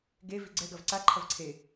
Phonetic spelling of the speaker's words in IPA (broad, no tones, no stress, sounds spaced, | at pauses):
ɡ e v i ɡ͡ǀ ɛ ɡ ɐ v ǀ a ǃʰ ɐ v ǀʰ e